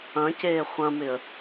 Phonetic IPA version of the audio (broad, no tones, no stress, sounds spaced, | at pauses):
ɐ̃ c eː χʷ ɐ̃ m ɪ ə̯